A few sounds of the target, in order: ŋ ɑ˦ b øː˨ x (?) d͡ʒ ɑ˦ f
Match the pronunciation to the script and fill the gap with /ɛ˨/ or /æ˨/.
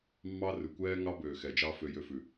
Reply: ɛ˨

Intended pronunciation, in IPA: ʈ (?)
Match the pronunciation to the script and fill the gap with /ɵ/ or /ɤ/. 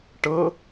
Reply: ɤ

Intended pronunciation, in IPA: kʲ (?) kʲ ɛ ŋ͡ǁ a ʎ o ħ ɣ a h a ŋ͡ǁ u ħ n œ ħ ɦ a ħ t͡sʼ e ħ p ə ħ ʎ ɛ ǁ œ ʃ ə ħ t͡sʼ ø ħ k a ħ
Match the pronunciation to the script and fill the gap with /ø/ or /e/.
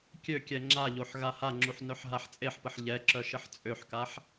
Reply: ø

